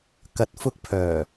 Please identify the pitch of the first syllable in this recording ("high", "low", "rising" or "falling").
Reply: low